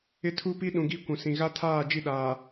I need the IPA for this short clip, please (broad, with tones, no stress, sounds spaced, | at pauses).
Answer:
ɪ˦ tʰ u˦ p i˦ ɗ ũ˨ ɡ i˦ kʷ ũ˨ s ĩ˨ ɣ a˦ tʰ aː˦˨ d͡ʒ i˦˨ ɗ aː˨